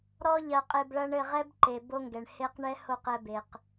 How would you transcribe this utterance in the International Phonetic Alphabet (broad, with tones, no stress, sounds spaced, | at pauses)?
ɾ ɔ˦ ʎ ɐ˧ qʼ e˧ b ɭ ɐ˦ ɳ ɘ˦˨ ʁ ɛ˦ b ǃ e˨ b o˦ ŋ ɡ ɛ˨ ɳ h e˧ q ɳ ɛ˦ h o˦˨ q ɛ˧ b e˨ q